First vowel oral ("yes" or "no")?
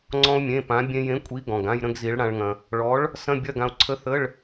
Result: no